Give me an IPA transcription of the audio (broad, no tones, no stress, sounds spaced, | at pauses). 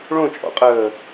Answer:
ɭ õ t͡ʃʼ ɔ̰ qʼ əː